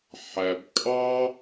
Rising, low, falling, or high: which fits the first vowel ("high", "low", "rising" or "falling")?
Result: low